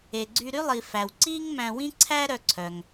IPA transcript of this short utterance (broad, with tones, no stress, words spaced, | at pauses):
e˩ɡ͡ǀy˧ ɾy˥lˠi˩ fæ˩wǀiː˥ŋ mæ̃˧wĩ˥ǀʰæ˥ɾœ˧ ǀʰœ˩ŋ